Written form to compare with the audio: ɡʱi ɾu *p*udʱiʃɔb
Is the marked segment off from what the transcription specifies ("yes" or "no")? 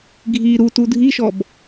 yes